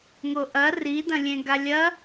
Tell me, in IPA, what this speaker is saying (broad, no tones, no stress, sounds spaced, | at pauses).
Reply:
ŋ o ʔ ɐ r i d ɐ̃ lʲ ẽ ɡ a lʲ ɐ